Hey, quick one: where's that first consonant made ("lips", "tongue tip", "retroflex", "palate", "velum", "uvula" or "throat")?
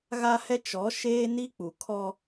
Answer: velum